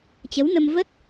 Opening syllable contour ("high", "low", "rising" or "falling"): rising